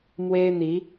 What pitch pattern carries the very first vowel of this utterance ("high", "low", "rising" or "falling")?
high